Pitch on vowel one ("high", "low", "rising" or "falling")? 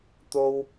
high